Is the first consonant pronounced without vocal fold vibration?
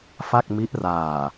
yes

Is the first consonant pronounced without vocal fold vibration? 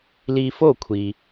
no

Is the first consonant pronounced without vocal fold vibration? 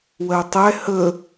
no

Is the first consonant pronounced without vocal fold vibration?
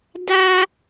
no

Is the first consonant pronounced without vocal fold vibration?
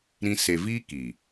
no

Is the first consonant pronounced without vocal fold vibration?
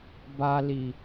no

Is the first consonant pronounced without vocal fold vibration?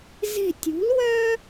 no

